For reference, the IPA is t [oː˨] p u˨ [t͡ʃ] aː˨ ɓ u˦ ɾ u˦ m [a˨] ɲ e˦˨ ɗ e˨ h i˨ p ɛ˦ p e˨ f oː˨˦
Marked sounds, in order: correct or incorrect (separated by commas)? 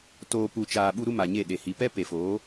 correct, correct, correct